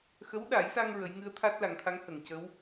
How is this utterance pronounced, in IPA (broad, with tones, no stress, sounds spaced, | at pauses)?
x ə˧˥ w ɗ a˨˩˦ j s a˧ ŋ ɹ ə˨˩˦ j ŋ ɨ˧˥ ə̯ t̪ʰ a˦˥ t̚ l a˨˩˦ ŋ t̪ʰ a˧˥ ŋ h ə˨˩˨ ŋ c ə˧˥ w